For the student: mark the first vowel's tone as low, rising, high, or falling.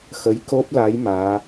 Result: rising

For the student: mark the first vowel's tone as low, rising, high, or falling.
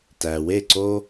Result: low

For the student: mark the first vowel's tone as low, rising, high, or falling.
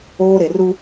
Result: high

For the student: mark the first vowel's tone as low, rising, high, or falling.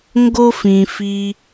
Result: high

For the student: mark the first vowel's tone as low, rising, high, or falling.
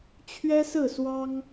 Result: high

